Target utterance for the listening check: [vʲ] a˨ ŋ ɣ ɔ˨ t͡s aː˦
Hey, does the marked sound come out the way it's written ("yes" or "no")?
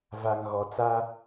no